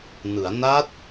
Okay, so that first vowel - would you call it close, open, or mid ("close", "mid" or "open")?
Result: close